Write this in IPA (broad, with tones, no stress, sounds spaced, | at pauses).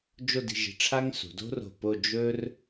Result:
d͡ʒ o˥˧ d i̤˧ ʒ i̤˧ ʈ͡ʂʰ a˥ ŋ s ṳ˩˧ d o̤˥ r o̤˧˩ p o˥˧ d͡ʒ ɵ˥ r